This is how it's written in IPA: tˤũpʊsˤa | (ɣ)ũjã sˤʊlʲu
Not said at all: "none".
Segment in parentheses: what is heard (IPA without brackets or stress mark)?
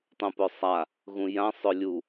ɣ